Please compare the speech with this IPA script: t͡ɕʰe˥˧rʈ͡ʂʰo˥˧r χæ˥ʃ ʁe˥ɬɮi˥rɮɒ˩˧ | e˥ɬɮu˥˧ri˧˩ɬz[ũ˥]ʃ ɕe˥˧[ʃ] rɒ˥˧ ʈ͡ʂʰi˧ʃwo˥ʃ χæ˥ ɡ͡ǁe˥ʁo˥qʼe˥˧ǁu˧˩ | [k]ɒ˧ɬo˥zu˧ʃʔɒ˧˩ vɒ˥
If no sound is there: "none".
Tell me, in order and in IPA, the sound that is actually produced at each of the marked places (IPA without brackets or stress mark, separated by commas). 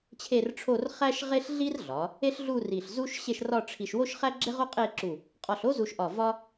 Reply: u˥, ʃ, qʼ